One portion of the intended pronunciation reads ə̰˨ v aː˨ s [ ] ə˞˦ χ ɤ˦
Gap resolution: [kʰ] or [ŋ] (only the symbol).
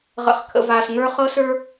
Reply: ŋ